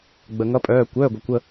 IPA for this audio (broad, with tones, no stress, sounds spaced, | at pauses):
ɡ͡b ə˩ ŋ ʌ˨˦ pʼ œː˩˧˩ kʷ œː˩˧˩ ɡʷ əː˩ kʷ ə˥˩